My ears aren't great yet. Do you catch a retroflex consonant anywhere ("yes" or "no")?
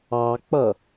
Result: no